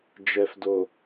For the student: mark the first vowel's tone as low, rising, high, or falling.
low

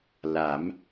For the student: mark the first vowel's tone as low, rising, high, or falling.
rising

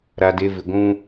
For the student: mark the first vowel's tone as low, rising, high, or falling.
low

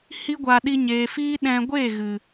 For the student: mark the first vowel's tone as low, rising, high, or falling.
high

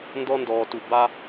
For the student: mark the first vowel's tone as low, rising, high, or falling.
high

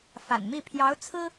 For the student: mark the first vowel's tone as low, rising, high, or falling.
low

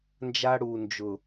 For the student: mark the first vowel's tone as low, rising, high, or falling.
high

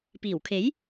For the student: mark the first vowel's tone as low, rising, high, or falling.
low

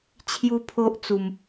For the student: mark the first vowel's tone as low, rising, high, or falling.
high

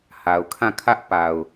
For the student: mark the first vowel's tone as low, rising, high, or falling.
low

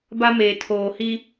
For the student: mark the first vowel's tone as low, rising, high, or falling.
high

